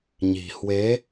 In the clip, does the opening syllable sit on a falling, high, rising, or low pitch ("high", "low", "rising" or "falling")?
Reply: low